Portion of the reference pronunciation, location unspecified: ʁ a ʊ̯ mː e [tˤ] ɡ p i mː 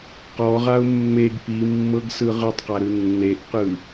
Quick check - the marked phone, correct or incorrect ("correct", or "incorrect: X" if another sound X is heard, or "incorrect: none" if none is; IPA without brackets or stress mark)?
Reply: incorrect: none